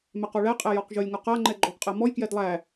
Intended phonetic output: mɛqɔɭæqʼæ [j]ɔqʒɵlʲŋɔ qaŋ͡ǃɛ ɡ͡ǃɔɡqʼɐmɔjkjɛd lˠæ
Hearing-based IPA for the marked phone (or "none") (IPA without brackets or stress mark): j